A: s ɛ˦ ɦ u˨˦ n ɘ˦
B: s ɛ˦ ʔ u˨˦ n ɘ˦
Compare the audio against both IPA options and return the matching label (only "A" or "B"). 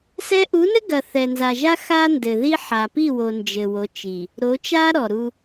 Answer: B